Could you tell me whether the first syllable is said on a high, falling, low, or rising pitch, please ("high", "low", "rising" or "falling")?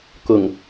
low